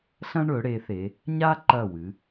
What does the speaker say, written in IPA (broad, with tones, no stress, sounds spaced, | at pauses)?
ɬ ɐ̃˥ ɳ ɵ˩˧ ɽ e˩˧ θ e˩˧ | ɲ a˥ ǃ ɐ˧˩ w ɨ˩˧